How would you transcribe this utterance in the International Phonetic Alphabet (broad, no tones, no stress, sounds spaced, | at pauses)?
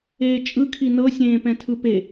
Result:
eː t͡ʃʼ ɯ kʰ i n ɤ sʲ ẽː p ɛ̃ tʰ ɯ p e